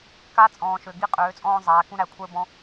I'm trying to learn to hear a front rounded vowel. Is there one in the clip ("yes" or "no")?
yes